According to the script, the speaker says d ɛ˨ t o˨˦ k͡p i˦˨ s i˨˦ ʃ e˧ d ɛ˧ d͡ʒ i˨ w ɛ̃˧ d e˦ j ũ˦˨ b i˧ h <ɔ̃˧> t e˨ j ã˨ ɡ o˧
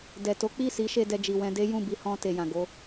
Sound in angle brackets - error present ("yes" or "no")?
no